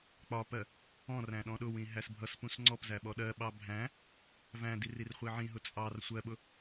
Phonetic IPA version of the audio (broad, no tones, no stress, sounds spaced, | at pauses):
k͡p ɒ p ɜ | ɔ̃ r æ̃ ɗ ɔ̃ ɗ ʊ w ĩ ɦ æ s bʱ ʌ s p ũ s ŋ͡ǀ ɔ p z æ ɓ ɔ ɗ ɜ ɓ ɑ bʱ æ̃ | v æ̃ d i r i r χʷ i ʕ ĩ ɦ ʊ t͡sʼ ɑ r sʷ ɜ ɓ ʊ